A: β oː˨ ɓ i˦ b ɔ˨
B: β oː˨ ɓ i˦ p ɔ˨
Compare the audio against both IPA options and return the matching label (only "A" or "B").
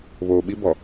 A